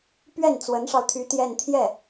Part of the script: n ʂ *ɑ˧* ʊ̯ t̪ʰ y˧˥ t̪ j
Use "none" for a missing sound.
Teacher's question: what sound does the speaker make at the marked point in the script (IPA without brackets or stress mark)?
ɑ˧